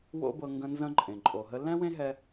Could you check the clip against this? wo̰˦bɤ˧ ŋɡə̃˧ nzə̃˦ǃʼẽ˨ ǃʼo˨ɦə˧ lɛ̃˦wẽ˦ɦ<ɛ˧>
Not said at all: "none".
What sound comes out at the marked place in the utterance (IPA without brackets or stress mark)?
ɛ˧